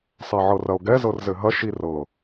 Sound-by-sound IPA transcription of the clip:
sˤ ɛ ʕ ɤ r ɐ o̯ ɡ ɛ z ɤ r z ɘ ɦ ɐ ʃ i r ɤ

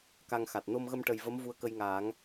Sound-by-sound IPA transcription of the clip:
k a˧ ŋ x a˨˩ t̚ n o˧ m ɣ ə˧ m ʈ ə˨˩ j v ə˧˥ m v u˧ ə̯ k ə˧ j ŋ aː˨˩˦ ŋ

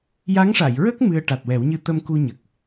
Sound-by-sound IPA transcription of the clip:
j a˧˥ ŋ ʂ a˨˩˨ j ɹ ə˦˥ k̚ m ɨ˧ ə̯ ʈ a˨˩ t̚ w ɛ˨˩˦ w ɲ ɨ˧ t̪ ə˧ m k u˧ ɲ ə˨˩ k̚

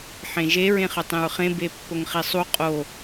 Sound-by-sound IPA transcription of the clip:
ħ ẽ ʒ e ɹ ẽ χ ɵ tˤ ẽ ɹ χ ẽ b e pː o ŋ χ i sˤ u qʼ o

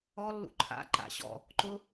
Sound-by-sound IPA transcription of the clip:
ɔ lː ṵ ǃʰ a̰ ǃ a̰ ɕ ɔ̰ | ǃ ʊ

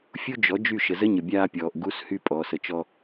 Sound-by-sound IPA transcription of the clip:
fʲ u˦ d͡ʒ ɔ˨˦ d͡ʒ y˦˨ ʃ ə˨ z ə˦ ɲ ə˨ bʲ aː˦ pʲ ɔː˨ ʔ ɡ u˦ s h y˦ pʼ ɔː˨ s ə˨ t͡ʃ ɔ˦

